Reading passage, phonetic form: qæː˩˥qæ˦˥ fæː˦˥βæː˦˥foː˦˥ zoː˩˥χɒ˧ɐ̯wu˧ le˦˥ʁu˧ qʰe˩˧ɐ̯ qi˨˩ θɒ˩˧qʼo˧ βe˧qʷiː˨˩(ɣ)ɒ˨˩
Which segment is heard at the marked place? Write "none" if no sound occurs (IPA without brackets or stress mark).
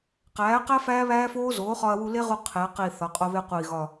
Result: ɣ